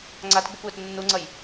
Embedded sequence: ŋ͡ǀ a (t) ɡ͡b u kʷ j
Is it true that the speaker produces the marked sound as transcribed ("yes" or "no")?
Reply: yes